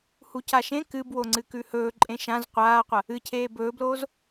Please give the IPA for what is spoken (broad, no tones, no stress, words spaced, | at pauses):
hucaʃẽ kɨbwoŋ͡ǀɨ kʉhɵː ǃʼẽʃãz qʷaːqʷɐ | ɨcʰeː bɵːbloːz